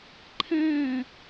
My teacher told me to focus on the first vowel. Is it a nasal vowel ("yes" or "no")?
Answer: yes